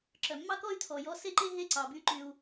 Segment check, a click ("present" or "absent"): present